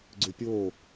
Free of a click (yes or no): no